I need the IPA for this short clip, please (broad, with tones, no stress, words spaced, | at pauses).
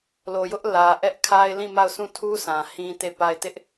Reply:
lo˨jʊ˦ʔ lä˨ ʔɛ˦ʔkʰa˦ɪ̯lĩ˦˨ma˦˨ʊ̯ sʰũ˦˨tʰu˦ sʰã˨hĩ˦te˦˨pa˦˨ɪ̯ tɪ˦ʔ